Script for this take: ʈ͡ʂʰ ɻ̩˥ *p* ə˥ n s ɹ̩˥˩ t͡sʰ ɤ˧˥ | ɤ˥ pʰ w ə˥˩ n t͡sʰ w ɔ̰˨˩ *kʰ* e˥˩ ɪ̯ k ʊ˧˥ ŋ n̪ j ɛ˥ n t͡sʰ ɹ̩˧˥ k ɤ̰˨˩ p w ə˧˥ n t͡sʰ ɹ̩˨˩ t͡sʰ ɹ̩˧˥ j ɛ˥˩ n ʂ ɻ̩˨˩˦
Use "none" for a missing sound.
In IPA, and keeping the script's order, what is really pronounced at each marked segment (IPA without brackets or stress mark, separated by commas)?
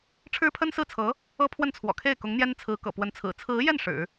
pʰ, kʰ